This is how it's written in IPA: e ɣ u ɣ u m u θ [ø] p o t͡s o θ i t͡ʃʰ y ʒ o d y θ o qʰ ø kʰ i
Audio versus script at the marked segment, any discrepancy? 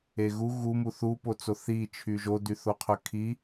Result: yes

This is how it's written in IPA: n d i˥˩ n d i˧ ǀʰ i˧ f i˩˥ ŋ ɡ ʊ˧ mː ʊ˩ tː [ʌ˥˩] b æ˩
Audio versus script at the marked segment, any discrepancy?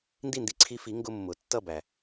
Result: no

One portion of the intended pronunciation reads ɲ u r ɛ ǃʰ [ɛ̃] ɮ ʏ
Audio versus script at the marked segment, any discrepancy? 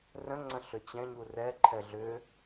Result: yes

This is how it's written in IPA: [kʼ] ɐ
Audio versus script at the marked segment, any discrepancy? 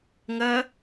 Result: yes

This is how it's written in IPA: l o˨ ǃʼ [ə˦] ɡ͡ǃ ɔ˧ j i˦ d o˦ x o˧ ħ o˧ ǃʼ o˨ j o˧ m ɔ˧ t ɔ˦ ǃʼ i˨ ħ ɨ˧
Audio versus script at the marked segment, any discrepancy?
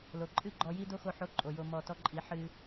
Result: yes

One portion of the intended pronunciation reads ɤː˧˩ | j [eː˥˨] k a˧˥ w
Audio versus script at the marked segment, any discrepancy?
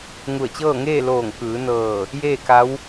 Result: no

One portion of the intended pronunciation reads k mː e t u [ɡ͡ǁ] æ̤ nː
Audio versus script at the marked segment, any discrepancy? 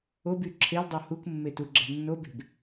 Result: no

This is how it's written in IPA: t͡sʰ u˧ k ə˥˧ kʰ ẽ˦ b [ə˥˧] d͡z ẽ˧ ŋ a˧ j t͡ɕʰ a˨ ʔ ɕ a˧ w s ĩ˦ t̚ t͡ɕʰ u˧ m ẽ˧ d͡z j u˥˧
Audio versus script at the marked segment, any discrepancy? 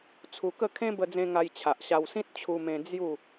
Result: yes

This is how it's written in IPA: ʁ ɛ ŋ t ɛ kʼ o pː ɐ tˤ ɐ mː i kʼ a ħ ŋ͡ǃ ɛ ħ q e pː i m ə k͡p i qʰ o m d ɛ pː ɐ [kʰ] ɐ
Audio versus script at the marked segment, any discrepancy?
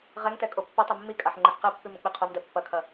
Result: no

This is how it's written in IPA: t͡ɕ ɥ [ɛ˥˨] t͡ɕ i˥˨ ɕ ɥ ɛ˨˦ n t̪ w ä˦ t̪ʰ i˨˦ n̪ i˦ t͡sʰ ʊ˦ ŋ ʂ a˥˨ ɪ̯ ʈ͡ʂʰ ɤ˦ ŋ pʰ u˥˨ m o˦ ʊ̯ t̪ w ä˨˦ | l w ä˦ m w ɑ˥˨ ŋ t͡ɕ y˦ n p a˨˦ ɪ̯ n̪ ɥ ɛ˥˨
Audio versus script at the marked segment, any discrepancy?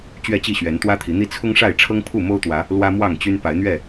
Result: no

